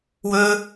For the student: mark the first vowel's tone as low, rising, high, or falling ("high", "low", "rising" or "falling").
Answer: high